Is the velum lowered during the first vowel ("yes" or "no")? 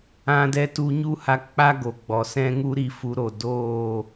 yes